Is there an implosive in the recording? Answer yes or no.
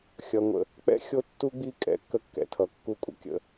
no